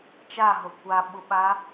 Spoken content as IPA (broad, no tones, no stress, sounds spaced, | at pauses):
t͡ʃ a ɦ o kʷ a ɓ u ɓ a